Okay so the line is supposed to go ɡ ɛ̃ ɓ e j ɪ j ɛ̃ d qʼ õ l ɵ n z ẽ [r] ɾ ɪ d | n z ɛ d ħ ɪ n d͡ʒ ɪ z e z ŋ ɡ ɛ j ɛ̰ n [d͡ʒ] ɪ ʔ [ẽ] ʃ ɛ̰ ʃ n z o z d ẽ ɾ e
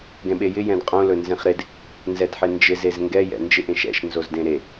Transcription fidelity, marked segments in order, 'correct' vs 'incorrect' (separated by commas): incorrect, correct, correct